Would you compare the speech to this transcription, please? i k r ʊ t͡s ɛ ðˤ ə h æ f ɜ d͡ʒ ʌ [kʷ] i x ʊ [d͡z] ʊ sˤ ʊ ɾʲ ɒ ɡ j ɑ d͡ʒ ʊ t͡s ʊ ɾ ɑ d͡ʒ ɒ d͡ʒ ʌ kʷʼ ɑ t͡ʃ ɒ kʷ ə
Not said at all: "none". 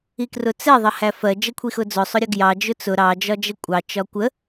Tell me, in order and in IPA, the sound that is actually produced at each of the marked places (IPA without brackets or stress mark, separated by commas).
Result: kʷʰ, d͡z